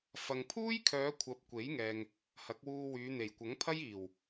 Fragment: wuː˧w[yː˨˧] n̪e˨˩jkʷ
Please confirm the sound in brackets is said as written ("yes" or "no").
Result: yes